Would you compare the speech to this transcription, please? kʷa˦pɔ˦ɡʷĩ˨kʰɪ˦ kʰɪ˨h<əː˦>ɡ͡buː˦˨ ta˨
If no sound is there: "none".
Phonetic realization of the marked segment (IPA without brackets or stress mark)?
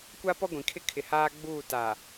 aː˦